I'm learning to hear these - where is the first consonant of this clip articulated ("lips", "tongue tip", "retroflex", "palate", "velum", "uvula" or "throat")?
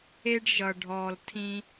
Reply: retroflex